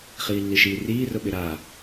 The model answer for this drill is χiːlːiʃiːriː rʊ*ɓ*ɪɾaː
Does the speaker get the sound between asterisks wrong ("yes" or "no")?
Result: no